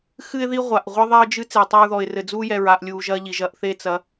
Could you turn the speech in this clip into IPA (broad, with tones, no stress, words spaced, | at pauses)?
xɨ˦ɪ̯ði˦ ʁʷa˨ʔ ʁʷɘ˦ðˤɛ˦ə̯d͡ʒɨ˦ t͡se˨ʊ̯tˤa˦ɹðɔ˨ɪ̯ rɘ˨d͡zuː˦ jɛ˨ɹaː˨ʔlʲuː˨ ʒɐ˦ʎi˨ʒɐ˦ʔθe˦ t͡sɐ˨˦